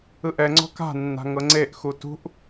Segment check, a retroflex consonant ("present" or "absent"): absent